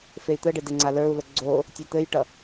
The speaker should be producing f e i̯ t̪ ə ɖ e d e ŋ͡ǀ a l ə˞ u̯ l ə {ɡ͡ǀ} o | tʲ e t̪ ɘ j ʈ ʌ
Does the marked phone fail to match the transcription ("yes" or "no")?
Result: no